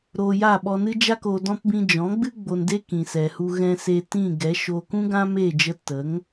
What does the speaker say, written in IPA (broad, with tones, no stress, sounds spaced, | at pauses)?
ɾ oː˧ j a˦˨ ɓ ɔ˧ n ɨ˦ d͡ʒ a˦ k o˧ d ɔ̃˦ p b ĩ˧ d͡ʒ ɔ̃˨˦ ɡ͡b ɨ˦ ɡ͡b o˧ n d e˦ k ĩ˨ s ɛ˨ h u˧ ɣ ɛ̃˧ s e˧ t ĩ˦˨ ɡ ɛ˨˦ ʃ oː˧ k ũ˦ ɡ ã˦ m eː˦˨ d͡ʒ ə˧ t ə˨˦ ŋ